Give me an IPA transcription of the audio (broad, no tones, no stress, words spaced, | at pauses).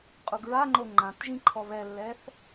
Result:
qʼuɡɹaŋ͡ǃo ŋ͡ǃãtʒĩ ǃʰɔβɛlːɛθ